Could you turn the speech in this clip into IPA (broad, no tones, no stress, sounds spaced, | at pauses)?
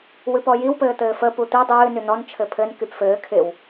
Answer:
w ɨ p ɔ j i w p ɘː t̪ ɘː f ə p u t̪ i dˤ ɨː n y n ɔ n t͡ʃʰ ɘ pʰ ɘ n k y p f ɘː kʰ ɪ w